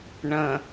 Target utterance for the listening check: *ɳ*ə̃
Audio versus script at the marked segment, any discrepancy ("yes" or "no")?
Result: no